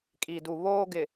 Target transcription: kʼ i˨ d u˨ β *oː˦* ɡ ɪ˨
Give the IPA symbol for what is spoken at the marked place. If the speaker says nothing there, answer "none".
oː˦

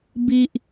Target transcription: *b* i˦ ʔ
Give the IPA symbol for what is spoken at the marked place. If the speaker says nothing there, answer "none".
b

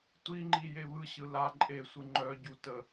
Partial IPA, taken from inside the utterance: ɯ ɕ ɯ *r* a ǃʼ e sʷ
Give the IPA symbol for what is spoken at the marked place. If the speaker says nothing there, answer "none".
l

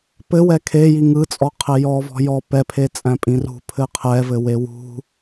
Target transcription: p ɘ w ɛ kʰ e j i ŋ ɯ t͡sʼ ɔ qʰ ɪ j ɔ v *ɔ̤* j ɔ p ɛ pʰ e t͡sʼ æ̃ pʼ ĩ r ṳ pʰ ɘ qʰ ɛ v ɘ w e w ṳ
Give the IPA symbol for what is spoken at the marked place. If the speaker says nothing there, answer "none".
ɔ̤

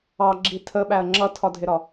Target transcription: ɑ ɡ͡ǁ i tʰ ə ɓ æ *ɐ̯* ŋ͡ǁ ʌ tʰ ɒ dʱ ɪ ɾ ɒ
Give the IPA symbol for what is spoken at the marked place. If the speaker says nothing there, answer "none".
ɐ̯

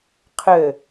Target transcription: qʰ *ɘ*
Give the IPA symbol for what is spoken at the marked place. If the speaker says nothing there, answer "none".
ɘ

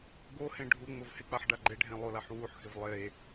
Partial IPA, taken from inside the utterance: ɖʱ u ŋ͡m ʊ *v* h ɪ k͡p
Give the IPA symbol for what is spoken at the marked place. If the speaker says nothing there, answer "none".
v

